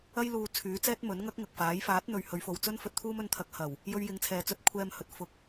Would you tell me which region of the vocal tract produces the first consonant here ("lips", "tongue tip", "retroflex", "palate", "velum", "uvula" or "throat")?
palate